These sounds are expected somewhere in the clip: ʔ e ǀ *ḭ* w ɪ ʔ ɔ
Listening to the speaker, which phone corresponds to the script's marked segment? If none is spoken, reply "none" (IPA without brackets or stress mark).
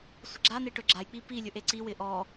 i